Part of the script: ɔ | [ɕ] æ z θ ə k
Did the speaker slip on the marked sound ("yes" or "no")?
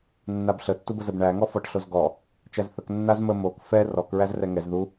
yes